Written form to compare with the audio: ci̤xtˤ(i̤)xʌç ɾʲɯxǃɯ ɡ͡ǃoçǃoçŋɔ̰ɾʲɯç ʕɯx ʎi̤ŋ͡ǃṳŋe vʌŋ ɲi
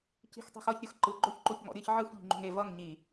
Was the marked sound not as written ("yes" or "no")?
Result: no